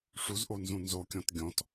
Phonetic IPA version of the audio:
ʂ u z ʔ o n z ũ n z o kʲ ɔ̃ t ɡʲ ɔ̃ t

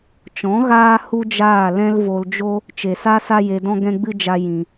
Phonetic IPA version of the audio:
t͡ʃ ɔ̃˨˦ ɣ aː˦ h u˦ d͡ʒ aː˦˨ l ɛ̃˦ l v o˧ l d͡ʒ o˦ | t͡ʃ e˨ s a˦ s a˦ j e˧ d ɔ̃˦ ɡ ɛ̃˦ ɡ͡b ɨ˦ d͡ʒ a˧ j ĩ˧

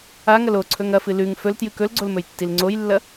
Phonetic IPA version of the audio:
a ŋ ɐ l o ǀʰ ɵ ŋ ɐ f ɨ l ʉ ŋ f ɵ l t j ɨ k ɵ l ɡ͡ǀ o l m ɵ j tː i l ŋ͡ǀ o j lː ɐ

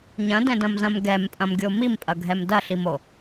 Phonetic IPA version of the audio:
ɲ ɐ̃ d ɛ̃ d ɐ̃ m z ɐ̃ m ɡ ɛ m pʼ ɐ̃ m ɡʲ o m i m pʼ ɐ ɡʱ ɛ m d ɐ ɬ i m o

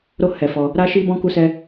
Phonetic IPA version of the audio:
ɾ o˦ h ɛ˧ f ɔ˧ | ɾ a˦ ʃ i˦ b ɔ̃˦ k u˦ s ɛ˦

